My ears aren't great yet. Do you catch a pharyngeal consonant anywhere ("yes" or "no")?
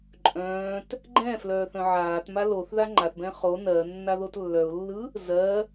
yes